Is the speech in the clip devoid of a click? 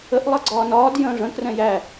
no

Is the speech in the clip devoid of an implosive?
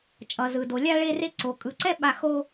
no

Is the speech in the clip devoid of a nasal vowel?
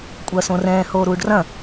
no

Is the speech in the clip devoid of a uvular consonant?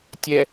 yes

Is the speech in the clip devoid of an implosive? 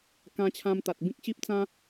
yes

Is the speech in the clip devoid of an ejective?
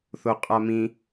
no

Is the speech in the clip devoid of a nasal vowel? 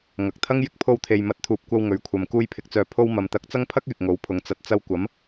yes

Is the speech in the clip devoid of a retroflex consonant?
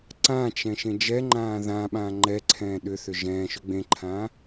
yes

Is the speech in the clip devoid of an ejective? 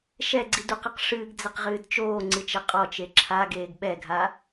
no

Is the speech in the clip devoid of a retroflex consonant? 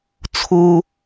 yes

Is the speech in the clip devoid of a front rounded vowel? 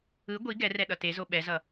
yes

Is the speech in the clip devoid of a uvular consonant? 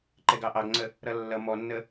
yes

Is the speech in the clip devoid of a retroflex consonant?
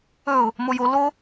yes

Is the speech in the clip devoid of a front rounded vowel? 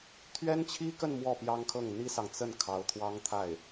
yes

